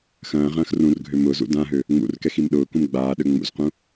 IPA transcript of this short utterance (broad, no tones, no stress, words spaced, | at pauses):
xɐ̃ːʁɐ̃ːx rũrɡʱø mʊzṵ dãɦø | ŋ͡mṵrkɛx imɗʊːkũm ɡ͡baːɗø ŋ͡mṵzqũ